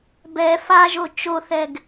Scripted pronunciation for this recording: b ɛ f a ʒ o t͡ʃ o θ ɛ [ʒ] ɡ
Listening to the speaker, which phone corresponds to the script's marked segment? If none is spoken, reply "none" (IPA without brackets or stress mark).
none